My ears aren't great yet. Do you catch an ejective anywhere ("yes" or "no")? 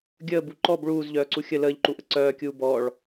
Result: no